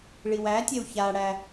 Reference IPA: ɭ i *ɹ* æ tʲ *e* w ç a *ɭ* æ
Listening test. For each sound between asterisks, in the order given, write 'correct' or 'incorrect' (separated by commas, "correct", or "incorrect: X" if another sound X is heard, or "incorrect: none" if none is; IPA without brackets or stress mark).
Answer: incorrect: w, correct, incorrect: ɽ